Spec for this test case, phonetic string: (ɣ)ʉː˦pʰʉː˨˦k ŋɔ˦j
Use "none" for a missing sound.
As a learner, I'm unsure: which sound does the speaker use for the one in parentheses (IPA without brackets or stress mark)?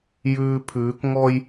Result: j